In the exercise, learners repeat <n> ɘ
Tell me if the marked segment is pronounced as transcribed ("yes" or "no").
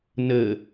yes